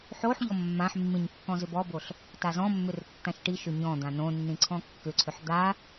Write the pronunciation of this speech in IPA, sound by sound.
ħ o ħ ʎ ɔ mː ã ħ mː ĩ ɲ kː ɔ̃ z ʏ b ɔ b o ɬ | t a z ɔ̃ mː ʏ r tː ã ʃ ʈ i ʃ ʏ ɲ ɔ̃ d̪ ã n õ nː ĩ ǀʰ ɔ̃ kː ʏ ǀʰ ʏ ħ d̪ a

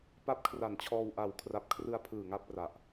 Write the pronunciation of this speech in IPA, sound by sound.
p a˦˥ p̚ kʰ r a˨˩ n t͡ɕʰ ɔː˧ w ʔ a˨˩ w kʰ r a˨˩ p̚ kʰ r ɯ˧ a̯ pʰ ɯː˨˩ ŋ a˥˩ p̚ r a˨˩ ʔ

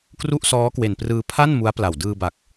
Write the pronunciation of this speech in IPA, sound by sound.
k r u˥˩ ʔ s ɔː˦˥ k w e˨˩ n p r ɯː˧ pʰ a˥˩ n m u˦˥ a̯ p l a˨˩ w d ɯː˧ b a˨˩ k̚

